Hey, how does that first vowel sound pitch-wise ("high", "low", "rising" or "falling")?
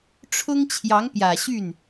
high